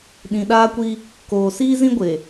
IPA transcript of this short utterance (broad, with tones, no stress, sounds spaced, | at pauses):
ɗ ĩ˨ ɗ aː˦ kʷ i˦ | k oː˨ s iː˦ z ĩ˦ ɡʷ e˨